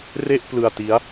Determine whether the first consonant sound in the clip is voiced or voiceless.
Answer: voiced